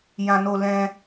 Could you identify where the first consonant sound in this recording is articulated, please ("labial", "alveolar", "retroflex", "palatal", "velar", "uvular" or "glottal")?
palatal